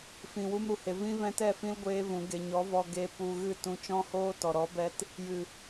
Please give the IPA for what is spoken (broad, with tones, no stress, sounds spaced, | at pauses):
f ĩ˧ w u˦ m ɾ u˨ h e˧ v ĩ˦ v ɛ̃˦ t ɛ˦˨ f ĩ˦ l ɡʷ eː˦ v ũ˨˦ ɡ e˧ ɲ ɔ˨˦ v ɔ˧ ɡ e˧ p u˧ ɣ ɨ˦˨ t ũ˧ t͡ʃ ɔ̃˦ h oː˦ t ɔ˨ ɾ ɔ˨˦ b ɛ˧ t | j ɨ˨